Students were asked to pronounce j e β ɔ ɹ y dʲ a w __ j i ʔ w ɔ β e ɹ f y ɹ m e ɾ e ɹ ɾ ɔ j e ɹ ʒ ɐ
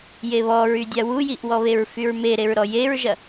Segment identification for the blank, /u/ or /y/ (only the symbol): u